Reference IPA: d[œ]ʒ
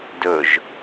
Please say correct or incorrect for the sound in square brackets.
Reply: incorrect